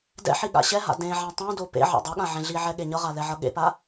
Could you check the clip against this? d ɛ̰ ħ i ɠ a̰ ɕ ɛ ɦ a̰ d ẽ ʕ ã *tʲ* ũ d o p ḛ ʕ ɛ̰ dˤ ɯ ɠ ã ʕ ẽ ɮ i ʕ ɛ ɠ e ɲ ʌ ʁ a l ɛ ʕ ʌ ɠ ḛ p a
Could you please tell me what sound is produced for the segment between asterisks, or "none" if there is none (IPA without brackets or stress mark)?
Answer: tˤ